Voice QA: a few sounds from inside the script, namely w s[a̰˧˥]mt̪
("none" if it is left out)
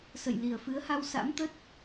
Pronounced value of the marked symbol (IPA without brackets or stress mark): a̰˧˥